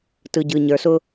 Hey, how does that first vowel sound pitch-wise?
low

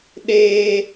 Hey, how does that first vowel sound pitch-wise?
high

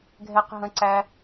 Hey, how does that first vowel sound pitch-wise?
high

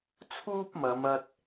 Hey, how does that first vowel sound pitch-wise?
high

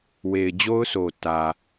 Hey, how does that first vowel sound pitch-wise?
low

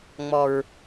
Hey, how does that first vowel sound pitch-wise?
low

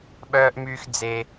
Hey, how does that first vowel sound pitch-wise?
high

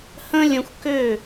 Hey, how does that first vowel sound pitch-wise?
high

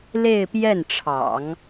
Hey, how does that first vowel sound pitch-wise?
falling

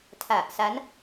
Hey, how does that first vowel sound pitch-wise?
low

